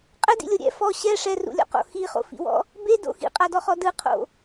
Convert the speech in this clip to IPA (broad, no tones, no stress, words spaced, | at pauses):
qʼɛdḭlʲo ɾʲɛ̰ fɔ ɕɛ ʂɛrṵlʲɔ̰qo̰ xiχo̰fḭwɔ̰ | bedo̰ xḭqʼadɔχɔ dɯqʰo̰